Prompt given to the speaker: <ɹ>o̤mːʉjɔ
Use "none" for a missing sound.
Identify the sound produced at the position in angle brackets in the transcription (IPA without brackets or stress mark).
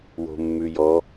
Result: w